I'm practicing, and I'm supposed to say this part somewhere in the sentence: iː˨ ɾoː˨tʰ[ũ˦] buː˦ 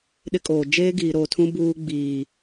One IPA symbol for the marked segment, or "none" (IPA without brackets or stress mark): ũ˦